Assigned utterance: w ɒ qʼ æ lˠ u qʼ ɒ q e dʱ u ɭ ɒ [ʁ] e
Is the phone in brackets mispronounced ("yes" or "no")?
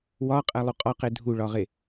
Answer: no